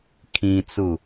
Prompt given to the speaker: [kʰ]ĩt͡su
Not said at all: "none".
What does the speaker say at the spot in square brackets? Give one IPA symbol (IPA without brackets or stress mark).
kʰ